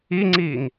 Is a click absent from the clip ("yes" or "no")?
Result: no